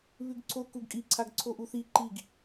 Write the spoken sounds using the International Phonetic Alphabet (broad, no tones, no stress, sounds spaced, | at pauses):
β ʉ ɡ ǀʰ o k u ɡ kʼ i ǀʰ a ɡ ǀʰ o ʔ u θ i ǃ i ɡ